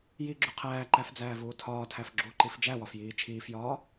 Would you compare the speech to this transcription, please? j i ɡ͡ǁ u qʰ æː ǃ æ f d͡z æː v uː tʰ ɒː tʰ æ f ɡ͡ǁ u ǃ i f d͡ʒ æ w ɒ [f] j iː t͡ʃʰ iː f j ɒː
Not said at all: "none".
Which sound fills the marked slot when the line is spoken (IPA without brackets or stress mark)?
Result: f